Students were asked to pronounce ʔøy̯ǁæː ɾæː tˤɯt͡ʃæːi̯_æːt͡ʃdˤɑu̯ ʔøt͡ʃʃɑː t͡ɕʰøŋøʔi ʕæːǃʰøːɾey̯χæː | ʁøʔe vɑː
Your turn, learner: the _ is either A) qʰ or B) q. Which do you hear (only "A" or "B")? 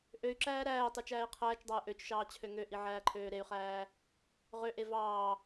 A